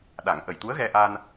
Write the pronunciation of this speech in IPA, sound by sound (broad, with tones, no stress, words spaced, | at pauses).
ɗa˨˩˦ŋʔə˨˩j t̪u˧˥ə̯ɣɛ˧ʔa˧n